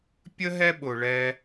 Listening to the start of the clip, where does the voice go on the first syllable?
high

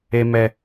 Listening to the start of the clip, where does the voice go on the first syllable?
low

